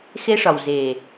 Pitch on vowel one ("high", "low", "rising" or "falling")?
high